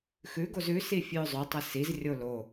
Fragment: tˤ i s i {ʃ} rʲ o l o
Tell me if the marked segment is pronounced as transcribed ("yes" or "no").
no